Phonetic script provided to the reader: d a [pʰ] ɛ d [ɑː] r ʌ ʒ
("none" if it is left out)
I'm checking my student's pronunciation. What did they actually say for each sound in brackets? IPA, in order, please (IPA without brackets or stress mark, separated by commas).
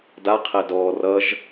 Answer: qʰ, ɔː